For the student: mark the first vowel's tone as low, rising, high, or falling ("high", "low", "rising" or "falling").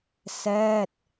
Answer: falling